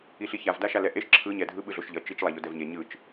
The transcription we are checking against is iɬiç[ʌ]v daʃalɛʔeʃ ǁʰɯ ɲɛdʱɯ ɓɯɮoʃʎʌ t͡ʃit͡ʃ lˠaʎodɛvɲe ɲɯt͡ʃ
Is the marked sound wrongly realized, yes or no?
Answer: yes